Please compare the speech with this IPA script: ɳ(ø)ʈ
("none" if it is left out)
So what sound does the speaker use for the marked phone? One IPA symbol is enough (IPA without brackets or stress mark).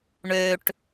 ø